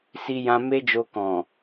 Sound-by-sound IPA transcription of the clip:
si˧jã˧me˦d͡ʒo˧ kɔ̃˨

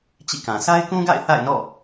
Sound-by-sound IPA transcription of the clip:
t͡ɕḭ˦˨kã˨ sʰa˦ɪ̯kũ˦ɡa̰˦˨ɪ̯ θa̰˦˨ɪ̯nɔ̰˦˨

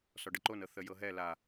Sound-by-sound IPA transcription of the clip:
sɔɖəǃonɤ θəjɤɦɛ la

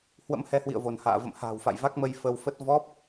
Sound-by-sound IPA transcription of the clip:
hwə̰˧˥mhɛ˨˦hwḭ˧˨ə̯vo˧˩n ha̰ː˧˨ və̰˧˨mha̤ː˨˩wfa̰˧˨j va˦˥k̚mə˧j fə˧wfə˦˥t̚ vɔ˦˥p̚

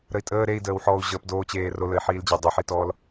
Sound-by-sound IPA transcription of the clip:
ɾəi̯tʼəː ɾei̯dəːwħɔːu̯ ʑəːpdoːt͡ɕeːro ləi̯ħiːld͡ʑɐ dˤɐħitɔːl

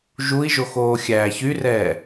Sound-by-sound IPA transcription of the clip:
ʒui̯ʒoxoː xʲæːçyrɛː

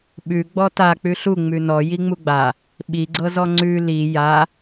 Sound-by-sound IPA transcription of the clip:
ɓʉ ɡ͡bɔta k͡pʉɬu ŋ͡mʉnɔ jiŋ͡muɡ͡ba | ɓiɡ͡ǀɤzɔ ŋ͡ǀʉ li ja

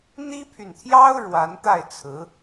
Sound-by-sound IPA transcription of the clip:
n̪i˥pʰy˨nt̪ʰjɑ˥ʊ̯ ɻwa˧˥nt̪a˥˩ɪ̯t͡sʰɹ̩˧˥

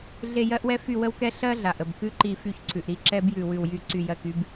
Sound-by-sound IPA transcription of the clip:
ɮe˦˨jɜ˥ʔwɛ˥ fy˦˨wə˥wkɛ˥ ɬɜ˥ɮa˩ʔə˩b kʉ˥ǃi˦˨ fy˦˨çǀʰʉ˩ʔɾi˦˨ ǁɛ˥b jʉ˦˨wʉ˦˨wjy˥ ǀy˦˨jɜ˦˨ky˥b

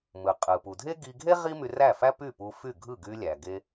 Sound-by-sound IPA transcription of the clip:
mɯ˩qʼɯ˩pu˩dʱe˥ ɡi˧ɡʱe˥ ʁi˥my˧ræ˥˩fæ˥ py˥˩pu˧fy˥˩ɡʱɯ˥˩ ɡy˧lʲæ˩ɡe˧

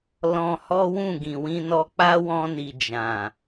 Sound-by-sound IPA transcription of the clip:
lɔ̃˧hɔ˦wũ˦˨ ɡĩ˨wĩ˧nɔ˧ k͡pa˦wɔ̃˧ni˨ d͡ʒã˨

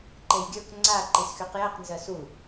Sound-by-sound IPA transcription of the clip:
ǃejɡʲə˞k ŋ͡ǀa ǃisxyqjɜq nzɜsu

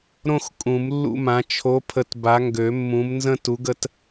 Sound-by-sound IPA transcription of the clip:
ɾõ˦x kʼũ˨˩˦mlːṵ˦mã˨˦ t͡ʃʰo˨˦pʰə˨˦t ba˨˦ŋɡø˨˩˦mːũ˨˦m nzə̃˦tu˨˦ɡə˨˦t

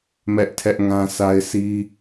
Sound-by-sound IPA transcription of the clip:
mɛ˦ʔ tʰɛ˦ʔŋã˦sʰa˦ɪ̯sʰi˦

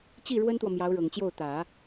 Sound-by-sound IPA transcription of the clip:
t͡ɕi˥˩ ɻwə˥nt̪wɔ˨mjɑ˧˥ʊ̯ ɻɤ˨˩ŋt͡ɕjo˥˩ʊ̯ t̪ä˨˩˦

